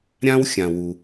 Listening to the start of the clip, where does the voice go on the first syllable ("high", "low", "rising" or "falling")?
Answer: high